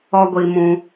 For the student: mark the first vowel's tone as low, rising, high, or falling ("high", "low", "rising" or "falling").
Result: high